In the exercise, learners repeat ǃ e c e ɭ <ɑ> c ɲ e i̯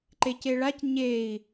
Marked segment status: incorrect: a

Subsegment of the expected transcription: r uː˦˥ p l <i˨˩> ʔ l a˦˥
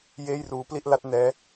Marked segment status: incorrect: i˥˩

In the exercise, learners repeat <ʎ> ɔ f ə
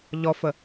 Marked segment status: correct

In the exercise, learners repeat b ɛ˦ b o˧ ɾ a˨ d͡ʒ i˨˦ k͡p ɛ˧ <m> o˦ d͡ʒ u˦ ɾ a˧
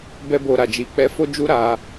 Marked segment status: incorrect: f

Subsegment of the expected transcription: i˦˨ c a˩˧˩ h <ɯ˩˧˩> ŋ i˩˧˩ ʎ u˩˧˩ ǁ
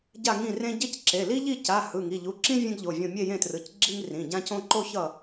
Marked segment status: correct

